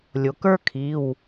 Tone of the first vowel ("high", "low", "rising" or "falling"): low